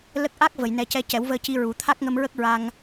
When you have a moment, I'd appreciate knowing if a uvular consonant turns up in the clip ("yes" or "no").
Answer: no